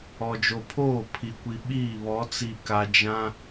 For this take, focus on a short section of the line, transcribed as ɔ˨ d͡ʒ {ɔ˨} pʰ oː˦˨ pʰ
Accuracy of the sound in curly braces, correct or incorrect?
incorrect